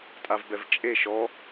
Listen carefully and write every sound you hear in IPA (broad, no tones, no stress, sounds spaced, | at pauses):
tʼ a v b ɛ v t͡ʃʼ e ʃ ɔ